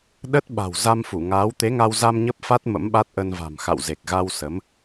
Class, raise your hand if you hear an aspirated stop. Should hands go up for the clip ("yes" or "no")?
no